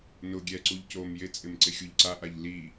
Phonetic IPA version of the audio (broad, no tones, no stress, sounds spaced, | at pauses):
n ʊ ɡʲ ɛ ǀ u ʎ c o m j ɪ t͡sʼ ɪ m ǀ ɪ xʲ u ʎ ǀ a ʔ a ʎ l i